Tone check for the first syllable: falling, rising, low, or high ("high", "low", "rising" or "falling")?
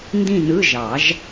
falling